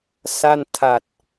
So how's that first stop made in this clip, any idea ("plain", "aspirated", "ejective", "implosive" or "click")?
aspirated